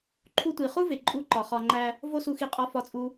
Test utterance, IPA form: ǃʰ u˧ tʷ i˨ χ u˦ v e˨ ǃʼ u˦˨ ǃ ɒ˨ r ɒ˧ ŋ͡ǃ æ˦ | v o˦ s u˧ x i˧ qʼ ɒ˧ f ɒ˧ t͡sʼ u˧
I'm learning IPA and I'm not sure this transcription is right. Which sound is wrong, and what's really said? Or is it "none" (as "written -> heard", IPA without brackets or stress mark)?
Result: r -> χ